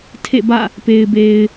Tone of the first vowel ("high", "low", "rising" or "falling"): falling